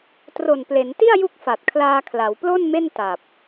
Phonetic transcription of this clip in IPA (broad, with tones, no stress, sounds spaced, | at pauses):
t r o˨˩ n p l e˩˦ n t i˥˩ a̯ j u˦˥ k̚ f a˨˩ t̚ kʰ l aː˧ kʰ l a˩˦ w p l o˥˩ n m e˥˩ n t a˨˩ p̚